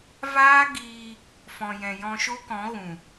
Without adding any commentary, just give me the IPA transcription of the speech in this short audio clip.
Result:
v aː˦ ɡ iː˧ | f ɔ̃˨ j ɛ̃˨ j ɔ̃˧ ʃ o˦ k ɔ̃˨˦ ɣ ũ˨

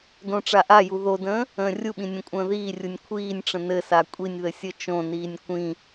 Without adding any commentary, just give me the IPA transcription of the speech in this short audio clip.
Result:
d õ ʈ͡ʂ a ʔ a j u ð o d ə̃ː | ə̃ː rʲ u ɓ ĩ nʲ ə̃ kʷʼ ə̃ː ð iː rʲ u nʲ kʷʰ iː nʲ ʈ͡ʂ ə̃ n ɘ s a kʷʼ i nʲ ð ɘ sʲ ə t͡ʃ õ n iː nʲ kʷ ĩ

